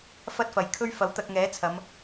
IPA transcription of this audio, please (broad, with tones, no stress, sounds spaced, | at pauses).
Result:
f ɐ˥ t̚ f ɐ˨ j kʰ ɵ˥ ɥ f ɐ˨˥ w t̪ ɐ˧ k̚ ŋ ɛː˨˥ t͡sʰ ɐ˨˧ m